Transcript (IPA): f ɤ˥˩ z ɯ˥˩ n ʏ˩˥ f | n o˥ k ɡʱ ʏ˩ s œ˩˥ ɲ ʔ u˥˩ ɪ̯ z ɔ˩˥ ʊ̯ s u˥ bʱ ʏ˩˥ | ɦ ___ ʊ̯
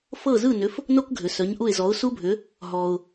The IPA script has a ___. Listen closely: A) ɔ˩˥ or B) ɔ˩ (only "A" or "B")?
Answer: B